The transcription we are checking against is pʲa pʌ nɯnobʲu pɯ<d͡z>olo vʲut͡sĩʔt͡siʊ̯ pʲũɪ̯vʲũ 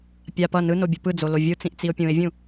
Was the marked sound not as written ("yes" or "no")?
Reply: no